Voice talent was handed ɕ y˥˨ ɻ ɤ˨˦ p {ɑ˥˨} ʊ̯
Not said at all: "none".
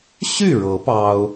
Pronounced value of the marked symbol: ɑ˦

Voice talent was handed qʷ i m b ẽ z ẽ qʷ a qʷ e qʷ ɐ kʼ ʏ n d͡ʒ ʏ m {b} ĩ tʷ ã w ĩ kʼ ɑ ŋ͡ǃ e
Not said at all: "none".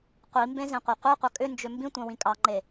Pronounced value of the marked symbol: b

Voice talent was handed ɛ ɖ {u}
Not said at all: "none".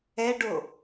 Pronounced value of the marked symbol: o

